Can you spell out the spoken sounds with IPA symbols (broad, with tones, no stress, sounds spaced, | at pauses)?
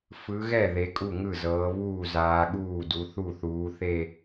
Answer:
f ɯ˨˦ ɣ ɛ˥˩ ð e˨˦ kʼ u˥˩ ŋ ɯ˥˩ z ɤː˨˦ β uː˥˩ z aː˨˦ ɠ uː˥˩ d u˨˦ θ u˥˩ θ uː˨˦ θ e˥˧